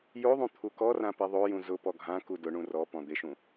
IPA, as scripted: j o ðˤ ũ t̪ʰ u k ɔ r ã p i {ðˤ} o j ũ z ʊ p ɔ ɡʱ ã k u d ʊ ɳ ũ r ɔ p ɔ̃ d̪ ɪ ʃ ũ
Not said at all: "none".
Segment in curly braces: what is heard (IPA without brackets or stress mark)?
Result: ðˤ